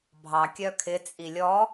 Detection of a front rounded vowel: present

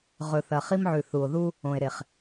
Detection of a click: absent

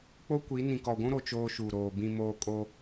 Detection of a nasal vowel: present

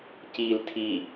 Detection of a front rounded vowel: absent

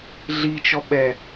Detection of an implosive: present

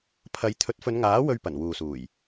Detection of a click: absent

